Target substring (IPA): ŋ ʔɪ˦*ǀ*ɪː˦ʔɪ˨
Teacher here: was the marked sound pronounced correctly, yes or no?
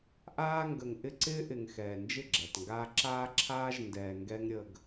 yes